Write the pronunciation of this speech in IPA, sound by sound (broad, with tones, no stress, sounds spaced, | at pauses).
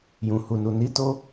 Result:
j ũ˨ h u˨ n u˨ n i˨˦ t o˦